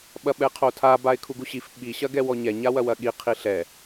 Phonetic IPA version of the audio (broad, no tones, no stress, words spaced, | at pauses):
ɓɐɓɛqʰotʰa baɪ̯kʰuɡuɕif ɓi ɕɐɡɛwɔɲɛ ɲawɐwɐɠi qʰiɬɛ